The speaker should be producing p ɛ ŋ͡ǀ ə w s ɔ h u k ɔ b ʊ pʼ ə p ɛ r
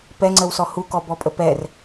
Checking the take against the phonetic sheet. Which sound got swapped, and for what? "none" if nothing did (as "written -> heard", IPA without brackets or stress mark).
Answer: ʊ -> ɔ